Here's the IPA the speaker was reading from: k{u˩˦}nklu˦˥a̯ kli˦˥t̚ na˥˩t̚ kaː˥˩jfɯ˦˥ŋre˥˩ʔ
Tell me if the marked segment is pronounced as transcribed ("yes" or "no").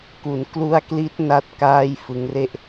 yes